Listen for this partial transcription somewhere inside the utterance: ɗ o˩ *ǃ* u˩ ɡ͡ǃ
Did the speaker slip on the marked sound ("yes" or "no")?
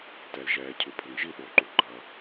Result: no